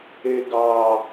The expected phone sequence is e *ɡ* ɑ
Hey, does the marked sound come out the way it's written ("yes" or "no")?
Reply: yes